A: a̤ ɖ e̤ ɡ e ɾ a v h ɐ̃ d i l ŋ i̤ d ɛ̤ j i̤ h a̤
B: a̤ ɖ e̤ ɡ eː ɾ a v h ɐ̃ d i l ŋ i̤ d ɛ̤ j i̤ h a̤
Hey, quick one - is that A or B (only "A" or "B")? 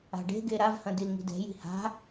A